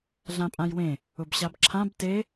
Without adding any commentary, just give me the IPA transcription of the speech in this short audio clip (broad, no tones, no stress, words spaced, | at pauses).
ɮãpʼãjwẽ | ʊbɕabǁʰãb te